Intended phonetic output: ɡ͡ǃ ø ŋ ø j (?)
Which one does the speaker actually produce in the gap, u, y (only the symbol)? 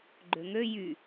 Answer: y